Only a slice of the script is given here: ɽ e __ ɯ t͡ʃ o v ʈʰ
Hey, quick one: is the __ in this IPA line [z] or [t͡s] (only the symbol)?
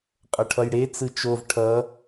t͡s